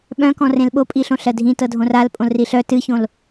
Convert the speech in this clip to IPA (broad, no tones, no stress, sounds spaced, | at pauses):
ɓ œ̃ k ɔ̃ r ẽ l ɓ o pʼ i ɬ õ ɬ ɜ dʱ ĩ t ɤ dʱ õ r a l pʼ õ l r i ɬ œ t ɨ ç õ l